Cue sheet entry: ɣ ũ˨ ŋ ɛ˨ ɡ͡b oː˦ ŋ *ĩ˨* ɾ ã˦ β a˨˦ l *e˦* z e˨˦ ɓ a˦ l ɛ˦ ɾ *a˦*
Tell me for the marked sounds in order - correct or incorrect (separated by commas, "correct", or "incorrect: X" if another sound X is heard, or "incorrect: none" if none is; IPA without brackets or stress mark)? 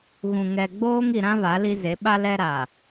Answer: incorrect: i˨, incorrect: i˦, incorrect: a˨